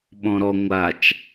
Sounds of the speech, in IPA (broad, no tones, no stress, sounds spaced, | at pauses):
ɓ ɔ̃ ɾ ɔ ŋʷ a t͡ʃ